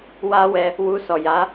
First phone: w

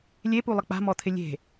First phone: lʲ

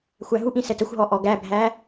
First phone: xʷ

